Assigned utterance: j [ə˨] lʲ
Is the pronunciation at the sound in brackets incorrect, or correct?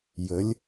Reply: incorrect